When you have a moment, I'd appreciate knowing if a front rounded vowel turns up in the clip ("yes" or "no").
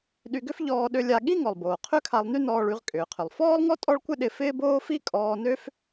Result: yes